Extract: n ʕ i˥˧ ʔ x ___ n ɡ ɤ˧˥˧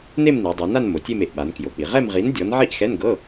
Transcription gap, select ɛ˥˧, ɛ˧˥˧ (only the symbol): ɛ˧˥˧